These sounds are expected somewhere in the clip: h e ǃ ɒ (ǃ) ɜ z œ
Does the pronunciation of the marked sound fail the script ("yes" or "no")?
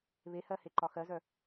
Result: yes